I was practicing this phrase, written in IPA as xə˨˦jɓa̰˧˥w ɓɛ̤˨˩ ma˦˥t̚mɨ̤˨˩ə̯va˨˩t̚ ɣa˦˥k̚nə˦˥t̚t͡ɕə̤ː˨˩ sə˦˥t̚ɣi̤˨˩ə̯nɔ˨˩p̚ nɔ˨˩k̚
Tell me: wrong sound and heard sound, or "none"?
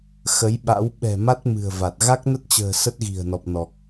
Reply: none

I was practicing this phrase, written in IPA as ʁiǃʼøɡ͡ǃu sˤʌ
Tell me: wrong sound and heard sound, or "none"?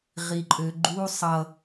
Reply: none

